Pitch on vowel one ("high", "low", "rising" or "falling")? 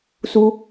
high